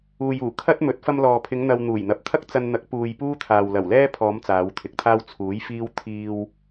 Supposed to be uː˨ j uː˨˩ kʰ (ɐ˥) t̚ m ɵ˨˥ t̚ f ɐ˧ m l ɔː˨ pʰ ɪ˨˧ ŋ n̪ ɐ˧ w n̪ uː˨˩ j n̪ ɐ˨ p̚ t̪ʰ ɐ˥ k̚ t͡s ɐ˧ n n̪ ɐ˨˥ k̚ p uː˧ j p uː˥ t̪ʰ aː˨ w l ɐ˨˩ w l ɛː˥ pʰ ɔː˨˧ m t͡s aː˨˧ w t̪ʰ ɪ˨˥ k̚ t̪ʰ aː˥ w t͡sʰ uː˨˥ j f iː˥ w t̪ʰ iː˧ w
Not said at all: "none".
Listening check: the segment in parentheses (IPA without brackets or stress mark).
ɐ˥